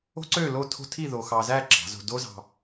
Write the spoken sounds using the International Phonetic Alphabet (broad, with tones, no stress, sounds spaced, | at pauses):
o̤˥ ǀ ø˥˧ l o˥˧ tʰ o̤˥ tʰ i˥˧ ð o˧ x ɑ˧ z æ˥˧ ǁ ɑ̤˩˧ z o̤˧ d o˥ z ɑ̤˧